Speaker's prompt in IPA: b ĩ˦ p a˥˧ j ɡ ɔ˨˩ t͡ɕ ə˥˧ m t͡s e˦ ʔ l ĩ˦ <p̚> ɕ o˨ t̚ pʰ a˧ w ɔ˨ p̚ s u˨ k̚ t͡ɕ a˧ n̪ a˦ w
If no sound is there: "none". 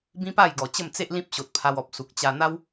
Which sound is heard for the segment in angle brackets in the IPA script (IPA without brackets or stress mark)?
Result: p̚